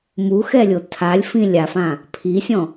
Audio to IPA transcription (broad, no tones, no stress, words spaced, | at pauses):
muxɛlʲo tʰalʲfĩ lʲafã | pʰisʲɔ̃